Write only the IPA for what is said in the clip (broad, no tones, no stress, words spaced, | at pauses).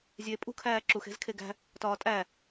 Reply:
zʲeːpʼṳ kʰæːǁux e̤zkʰeɡæ̤ | tɒːtʼæ